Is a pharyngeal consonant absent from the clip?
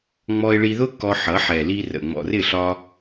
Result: no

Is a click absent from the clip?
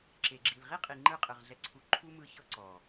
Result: no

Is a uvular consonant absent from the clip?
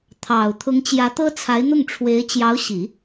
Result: yes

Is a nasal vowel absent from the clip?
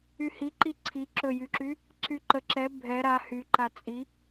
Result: yes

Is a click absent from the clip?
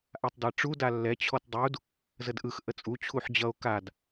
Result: yes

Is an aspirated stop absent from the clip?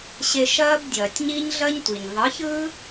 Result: yes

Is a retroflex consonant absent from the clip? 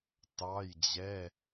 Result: yes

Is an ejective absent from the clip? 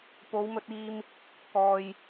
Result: yes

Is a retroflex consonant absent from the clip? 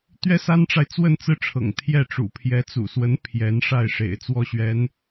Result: no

